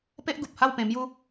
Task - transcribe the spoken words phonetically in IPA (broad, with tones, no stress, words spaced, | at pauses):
pe˦ʔ ɡu˨p̚ha˥˧wpẽ˧ mju˦